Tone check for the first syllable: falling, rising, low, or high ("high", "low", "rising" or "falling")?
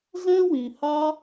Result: high